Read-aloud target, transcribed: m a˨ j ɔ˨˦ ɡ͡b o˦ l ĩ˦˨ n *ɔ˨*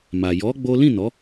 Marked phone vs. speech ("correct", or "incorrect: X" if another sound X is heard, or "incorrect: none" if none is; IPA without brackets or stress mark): incorrect: ɔ˨˦